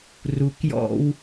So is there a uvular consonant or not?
no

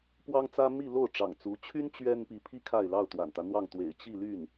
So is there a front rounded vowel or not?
yes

